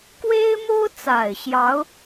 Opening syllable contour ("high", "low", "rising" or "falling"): high